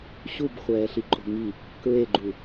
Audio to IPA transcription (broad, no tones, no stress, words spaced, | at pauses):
ɕubχʷɛːɬiǃʼo̤ ŋi | kɹeɡ͡ǃu